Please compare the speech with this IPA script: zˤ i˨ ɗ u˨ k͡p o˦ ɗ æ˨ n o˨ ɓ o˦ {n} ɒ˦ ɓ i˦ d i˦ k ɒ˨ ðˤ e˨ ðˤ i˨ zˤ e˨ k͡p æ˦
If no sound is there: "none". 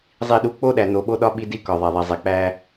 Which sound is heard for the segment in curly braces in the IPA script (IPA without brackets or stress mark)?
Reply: ɗ